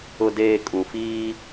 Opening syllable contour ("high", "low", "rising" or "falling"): low